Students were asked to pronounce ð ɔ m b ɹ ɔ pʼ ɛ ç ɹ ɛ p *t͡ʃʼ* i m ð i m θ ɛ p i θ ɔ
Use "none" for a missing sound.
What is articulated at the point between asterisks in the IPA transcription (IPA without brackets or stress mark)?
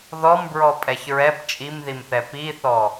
t͡ʃʼ